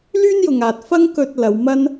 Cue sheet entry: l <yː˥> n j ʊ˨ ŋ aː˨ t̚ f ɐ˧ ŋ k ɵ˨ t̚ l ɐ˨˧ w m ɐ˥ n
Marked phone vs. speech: correct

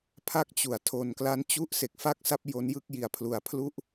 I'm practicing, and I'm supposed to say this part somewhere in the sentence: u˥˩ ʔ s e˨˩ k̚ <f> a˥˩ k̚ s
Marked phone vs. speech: correct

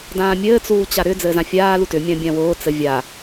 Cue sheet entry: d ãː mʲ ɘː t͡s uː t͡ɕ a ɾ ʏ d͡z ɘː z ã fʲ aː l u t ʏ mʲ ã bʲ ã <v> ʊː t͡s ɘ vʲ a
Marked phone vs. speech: incorrect: w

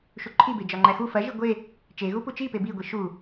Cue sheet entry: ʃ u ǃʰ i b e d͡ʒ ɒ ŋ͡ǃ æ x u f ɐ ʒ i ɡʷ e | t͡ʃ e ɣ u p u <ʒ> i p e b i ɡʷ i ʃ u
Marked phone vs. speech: incorrect: t͡ʃ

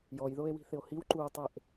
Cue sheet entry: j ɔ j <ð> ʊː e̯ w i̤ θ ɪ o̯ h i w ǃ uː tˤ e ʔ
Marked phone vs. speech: correct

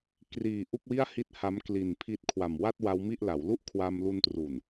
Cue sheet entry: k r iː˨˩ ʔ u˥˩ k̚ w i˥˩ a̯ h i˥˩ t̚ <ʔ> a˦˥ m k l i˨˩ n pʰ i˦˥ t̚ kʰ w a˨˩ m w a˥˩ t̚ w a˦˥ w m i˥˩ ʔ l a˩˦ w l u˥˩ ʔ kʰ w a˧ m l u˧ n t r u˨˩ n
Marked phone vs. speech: incorrect: h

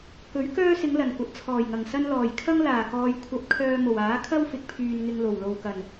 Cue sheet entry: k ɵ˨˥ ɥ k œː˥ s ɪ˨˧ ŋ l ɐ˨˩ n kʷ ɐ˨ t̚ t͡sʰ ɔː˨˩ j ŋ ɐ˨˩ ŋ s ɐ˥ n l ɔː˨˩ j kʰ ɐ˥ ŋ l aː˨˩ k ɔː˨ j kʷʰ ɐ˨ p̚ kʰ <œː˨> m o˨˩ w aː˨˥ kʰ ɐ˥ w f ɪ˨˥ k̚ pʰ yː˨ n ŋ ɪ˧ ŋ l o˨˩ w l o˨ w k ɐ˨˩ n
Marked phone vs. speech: correct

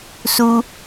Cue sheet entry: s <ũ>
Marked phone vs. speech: incorrect: u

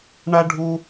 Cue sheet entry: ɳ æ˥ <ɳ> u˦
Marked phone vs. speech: incorrect: ɖʱ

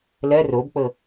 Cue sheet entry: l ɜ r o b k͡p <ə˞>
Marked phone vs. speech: incorrect: ɤ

